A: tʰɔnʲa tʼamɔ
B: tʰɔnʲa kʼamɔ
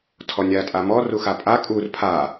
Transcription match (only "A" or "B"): A